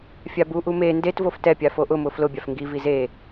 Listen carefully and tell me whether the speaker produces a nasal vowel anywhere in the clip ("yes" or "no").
no